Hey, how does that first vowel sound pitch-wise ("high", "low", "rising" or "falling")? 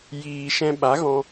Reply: low